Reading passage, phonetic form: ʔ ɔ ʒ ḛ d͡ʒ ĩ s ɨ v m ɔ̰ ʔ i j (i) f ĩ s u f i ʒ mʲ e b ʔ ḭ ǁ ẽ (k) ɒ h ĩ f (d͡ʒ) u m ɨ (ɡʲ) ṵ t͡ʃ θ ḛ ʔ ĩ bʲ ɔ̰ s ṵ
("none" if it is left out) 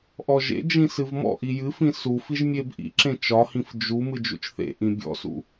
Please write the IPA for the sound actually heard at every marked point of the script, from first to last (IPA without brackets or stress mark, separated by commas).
ɨ, t͡ʃ, d͡ʒ, d͡ʒ